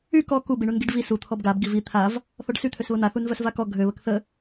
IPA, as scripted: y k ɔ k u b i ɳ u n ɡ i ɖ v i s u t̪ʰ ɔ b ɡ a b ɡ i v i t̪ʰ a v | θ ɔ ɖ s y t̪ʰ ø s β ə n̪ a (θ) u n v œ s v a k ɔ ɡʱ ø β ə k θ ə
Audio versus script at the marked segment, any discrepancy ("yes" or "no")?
no